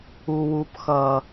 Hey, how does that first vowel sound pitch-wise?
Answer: high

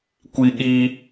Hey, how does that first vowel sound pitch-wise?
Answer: high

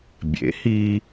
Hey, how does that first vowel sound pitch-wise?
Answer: rising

